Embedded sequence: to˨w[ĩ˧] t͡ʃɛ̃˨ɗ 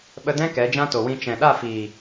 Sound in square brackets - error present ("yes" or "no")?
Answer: no